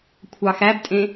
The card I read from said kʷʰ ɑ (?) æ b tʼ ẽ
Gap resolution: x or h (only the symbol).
x